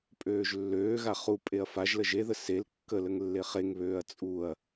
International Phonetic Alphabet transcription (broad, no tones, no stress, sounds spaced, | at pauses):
pʼ øː ʒ lː øː ɣ a χ u pʼ e ɐ̯ f a ʒ l ə ʒ e ð ə s e l kː ə l ə ŋ lː e χ e ŋ β øː ɐ̯ t͡sʼ u ɐ̯